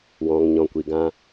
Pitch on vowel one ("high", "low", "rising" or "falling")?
low